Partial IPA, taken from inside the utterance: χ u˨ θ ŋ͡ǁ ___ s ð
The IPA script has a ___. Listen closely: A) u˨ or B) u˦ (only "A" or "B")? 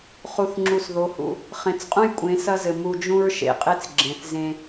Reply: A